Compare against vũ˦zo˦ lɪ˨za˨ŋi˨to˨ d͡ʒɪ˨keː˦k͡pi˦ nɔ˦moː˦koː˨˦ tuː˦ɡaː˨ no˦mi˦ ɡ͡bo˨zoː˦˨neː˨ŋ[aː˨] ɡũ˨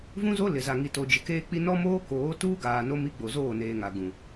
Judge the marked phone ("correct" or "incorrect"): incorrect